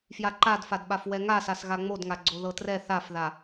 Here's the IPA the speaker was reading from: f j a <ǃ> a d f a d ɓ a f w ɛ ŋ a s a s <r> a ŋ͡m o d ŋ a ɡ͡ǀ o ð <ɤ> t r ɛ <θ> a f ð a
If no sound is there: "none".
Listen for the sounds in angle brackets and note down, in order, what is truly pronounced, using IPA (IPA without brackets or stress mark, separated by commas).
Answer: ǃ, ɣ, ɤ, θ